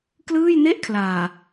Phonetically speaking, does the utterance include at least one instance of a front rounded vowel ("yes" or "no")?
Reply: no